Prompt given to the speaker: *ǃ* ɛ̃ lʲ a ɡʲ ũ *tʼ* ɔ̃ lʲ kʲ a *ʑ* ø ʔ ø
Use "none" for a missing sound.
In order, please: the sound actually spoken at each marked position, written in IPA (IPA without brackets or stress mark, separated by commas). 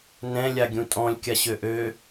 n, tʼ, ɕ